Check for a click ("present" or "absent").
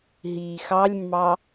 absent